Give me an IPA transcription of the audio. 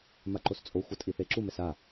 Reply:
m a ǃ o s t͡sʼ o xʷ ʌ tʼ i θ e ǁ u m ɛ s a

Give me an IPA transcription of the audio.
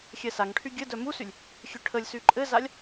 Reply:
xʲ ɛ s a ŋ ʈʰ y ɡʲ ɘ d œ m u s y lʲ | xʲ ø ʈʰ ə lʲ s y ǃʼ ɘ z a lʲ

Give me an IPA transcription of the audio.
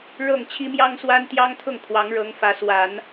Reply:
ɻ ɤ˥˩ ŋ t͡ɕʰ i˥ m j ɑ˥ ŋ s w a˥ n t̪ j ɑ˥ ŋ t̪ʰ ʊ˥˩ ŋ kʰ w ɑ˧˥ ŋ ɻ ɤ˧˥ ŋ f ä˧˥ s w a˨˩˦ n

